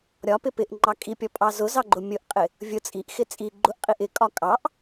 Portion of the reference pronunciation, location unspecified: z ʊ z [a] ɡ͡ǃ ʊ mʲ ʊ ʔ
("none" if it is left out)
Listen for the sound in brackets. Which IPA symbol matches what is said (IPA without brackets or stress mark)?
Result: ɑ